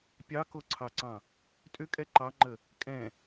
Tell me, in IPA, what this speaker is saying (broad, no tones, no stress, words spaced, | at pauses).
pʲɑkoǀʰɑǀɑ̃ | tʼʏkʼɛ ǃɑŋ͡ǃə | kʼɛ̃